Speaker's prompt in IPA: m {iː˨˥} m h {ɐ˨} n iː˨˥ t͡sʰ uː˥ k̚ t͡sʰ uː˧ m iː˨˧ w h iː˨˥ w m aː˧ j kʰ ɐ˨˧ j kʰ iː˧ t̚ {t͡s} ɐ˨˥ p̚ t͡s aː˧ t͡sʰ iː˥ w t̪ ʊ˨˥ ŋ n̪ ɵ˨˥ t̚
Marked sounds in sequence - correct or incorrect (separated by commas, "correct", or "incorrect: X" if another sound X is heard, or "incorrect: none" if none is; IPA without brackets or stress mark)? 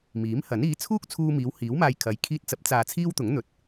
correct, incorrect: ɐ˨˥, correct